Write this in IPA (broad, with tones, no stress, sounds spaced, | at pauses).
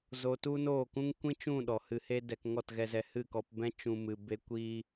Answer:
z o˧ t u˦ n oː˦˨ k ũ˦ ŋ kʷ ĩ˦ t͡ʃ ũ˦˨ ɗ ɔ˨ h ɨ˧ h e˦ d ɛ˧ k ŋ ɔ˦˨ t ɣ ɛ˧ z ɛ˧ h ɨ˦˨ k ɔ˧ p b ɛ̃˦ t͡ʃ ũ˧ m ɨ˧ b e˦ kʷ iː˦